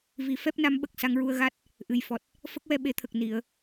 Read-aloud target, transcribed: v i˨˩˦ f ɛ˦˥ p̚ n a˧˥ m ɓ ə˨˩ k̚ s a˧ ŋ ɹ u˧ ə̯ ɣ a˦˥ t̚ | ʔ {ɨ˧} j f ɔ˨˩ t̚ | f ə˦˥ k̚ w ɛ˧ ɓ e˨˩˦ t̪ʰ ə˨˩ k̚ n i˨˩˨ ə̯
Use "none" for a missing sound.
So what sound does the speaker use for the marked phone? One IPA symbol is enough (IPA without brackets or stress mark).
ɨ˨˩